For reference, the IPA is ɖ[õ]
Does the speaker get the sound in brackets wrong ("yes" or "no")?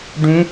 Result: yes